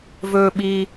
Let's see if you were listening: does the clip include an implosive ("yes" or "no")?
yes